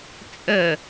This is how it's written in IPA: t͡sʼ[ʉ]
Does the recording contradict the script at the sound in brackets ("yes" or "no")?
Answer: yes